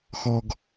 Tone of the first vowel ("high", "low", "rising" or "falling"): high